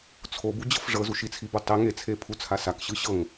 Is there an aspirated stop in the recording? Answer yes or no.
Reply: yes